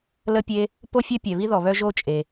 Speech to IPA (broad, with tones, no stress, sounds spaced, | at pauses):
l ə˥ pʲ e˥ | p o˥ fʲ œ˥ pʲ ɛ˩ β i˥ ð ɔ˩ β œ˥ ʒ o˥ t͡ʃʼ e˩